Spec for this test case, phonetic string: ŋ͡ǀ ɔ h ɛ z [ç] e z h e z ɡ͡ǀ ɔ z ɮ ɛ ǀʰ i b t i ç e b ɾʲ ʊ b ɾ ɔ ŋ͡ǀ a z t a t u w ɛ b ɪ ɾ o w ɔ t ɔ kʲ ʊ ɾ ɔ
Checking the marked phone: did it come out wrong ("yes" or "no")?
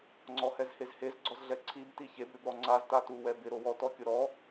yes